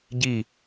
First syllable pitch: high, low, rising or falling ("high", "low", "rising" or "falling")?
falling